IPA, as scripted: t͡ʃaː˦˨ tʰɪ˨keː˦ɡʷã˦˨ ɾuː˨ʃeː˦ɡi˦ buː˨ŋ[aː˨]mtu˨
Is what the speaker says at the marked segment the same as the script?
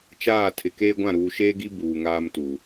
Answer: no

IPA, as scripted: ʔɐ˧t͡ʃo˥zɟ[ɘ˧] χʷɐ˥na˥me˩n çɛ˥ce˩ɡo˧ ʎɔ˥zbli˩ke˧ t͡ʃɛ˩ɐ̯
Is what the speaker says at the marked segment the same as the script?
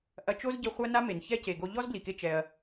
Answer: yes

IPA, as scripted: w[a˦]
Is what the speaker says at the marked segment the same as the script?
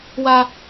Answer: yes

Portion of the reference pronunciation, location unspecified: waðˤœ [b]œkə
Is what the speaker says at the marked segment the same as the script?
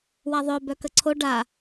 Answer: yes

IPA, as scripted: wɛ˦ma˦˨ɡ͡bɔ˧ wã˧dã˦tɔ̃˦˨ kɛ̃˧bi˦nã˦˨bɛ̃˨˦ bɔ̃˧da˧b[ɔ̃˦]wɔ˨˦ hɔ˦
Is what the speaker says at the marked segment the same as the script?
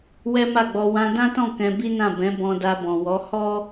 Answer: no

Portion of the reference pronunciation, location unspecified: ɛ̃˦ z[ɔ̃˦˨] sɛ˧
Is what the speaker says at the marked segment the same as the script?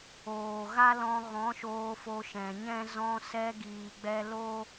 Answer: no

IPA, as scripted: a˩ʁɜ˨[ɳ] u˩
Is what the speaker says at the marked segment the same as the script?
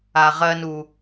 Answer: no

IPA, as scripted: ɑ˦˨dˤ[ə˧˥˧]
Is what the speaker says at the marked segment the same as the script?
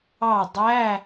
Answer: no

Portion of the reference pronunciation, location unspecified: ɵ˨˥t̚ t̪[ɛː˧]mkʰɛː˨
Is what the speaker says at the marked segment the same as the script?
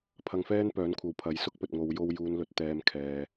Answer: yes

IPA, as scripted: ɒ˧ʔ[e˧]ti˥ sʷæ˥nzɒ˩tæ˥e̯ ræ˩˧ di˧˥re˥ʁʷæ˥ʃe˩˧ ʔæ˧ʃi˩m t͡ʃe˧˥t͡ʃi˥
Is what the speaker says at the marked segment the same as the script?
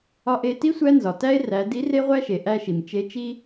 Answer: yes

